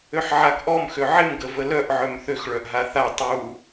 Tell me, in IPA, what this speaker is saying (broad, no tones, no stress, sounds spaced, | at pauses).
ø ħ ʕ a ɡ ʔ ɔ m x ø ʕ ɪ m ɡ ə v ə l œ ʔ ʕ œ m θ ø x ɭ œ ʔ ɦ a θ a tˤ u